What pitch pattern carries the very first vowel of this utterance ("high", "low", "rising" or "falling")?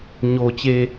low